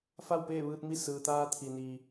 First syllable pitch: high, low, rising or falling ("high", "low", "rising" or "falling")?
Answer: falling